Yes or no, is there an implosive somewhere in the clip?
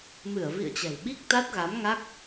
yes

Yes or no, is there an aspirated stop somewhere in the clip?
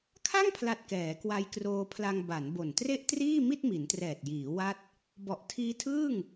yes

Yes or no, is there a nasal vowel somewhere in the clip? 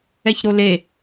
no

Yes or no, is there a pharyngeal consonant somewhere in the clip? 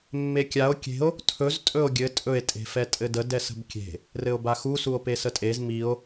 no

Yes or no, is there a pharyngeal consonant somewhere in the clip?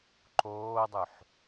yes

